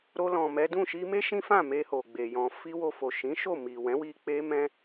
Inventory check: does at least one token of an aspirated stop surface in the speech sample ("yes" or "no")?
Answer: no